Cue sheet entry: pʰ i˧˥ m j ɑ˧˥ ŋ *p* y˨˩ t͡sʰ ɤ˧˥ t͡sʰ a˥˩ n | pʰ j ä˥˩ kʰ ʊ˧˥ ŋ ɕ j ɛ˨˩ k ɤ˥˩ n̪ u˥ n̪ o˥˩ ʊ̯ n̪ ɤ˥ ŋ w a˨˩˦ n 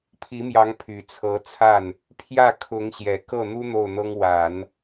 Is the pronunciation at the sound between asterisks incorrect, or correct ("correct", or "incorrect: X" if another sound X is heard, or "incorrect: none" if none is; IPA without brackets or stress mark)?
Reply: incorrect: pʰ